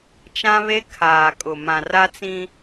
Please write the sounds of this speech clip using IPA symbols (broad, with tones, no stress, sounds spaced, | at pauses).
t͡ʃ ã˦ β e˦ kʰ aː˨ kʼ ʊ˨ m ã˨ r a˦ t͡s ĩ˦